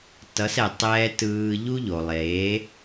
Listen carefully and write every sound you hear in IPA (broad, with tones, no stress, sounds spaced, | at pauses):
t ʌ˨˦ s ɛ˨ tˤ ɛː˧ t ɯː˧ ʎ u˦ ʎ o˨ lˠ eː˨˦